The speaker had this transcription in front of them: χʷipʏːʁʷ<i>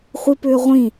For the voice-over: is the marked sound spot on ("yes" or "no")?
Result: no